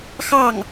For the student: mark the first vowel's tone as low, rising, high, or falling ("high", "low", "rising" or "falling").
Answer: falling